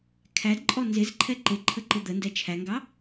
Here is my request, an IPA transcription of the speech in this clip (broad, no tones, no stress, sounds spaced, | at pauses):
kʰ æ d ǃʼ ɔ n z ɪ z ǃʰ ɛ ǃ ɪ ǃʰ ə ǃ ɪ d̪ ə n d ɛ t͡ʃʰ æ ŋ ɡ ɑ